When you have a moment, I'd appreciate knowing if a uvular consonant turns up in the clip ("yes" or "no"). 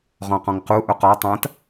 yes